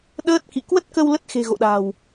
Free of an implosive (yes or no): no